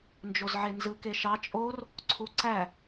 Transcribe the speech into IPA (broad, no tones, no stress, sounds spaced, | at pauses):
n d͡ʒ o z ʕ e n z ɯ k e ʃ ɑ t͡ʃʼ o r | ǀʰ u ǀ æ